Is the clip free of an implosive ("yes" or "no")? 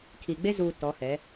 yes